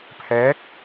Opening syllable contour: rising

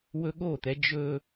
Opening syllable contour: high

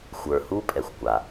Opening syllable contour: low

